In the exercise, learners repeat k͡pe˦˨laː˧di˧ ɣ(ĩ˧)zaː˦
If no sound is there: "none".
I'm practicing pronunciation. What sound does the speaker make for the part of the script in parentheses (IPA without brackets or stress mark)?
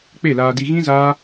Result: ĩ˦